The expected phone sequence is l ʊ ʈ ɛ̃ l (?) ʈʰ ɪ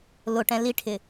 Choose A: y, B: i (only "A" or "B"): B